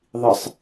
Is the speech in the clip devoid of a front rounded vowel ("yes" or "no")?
yes